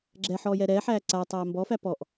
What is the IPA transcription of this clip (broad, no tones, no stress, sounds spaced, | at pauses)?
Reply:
ɡ͡ǁ ɛ ħ ɔː j ɛ ɾ ɛː ħ æː ǀ a tˤ æː m b ɔ f æ p ɔ ʔ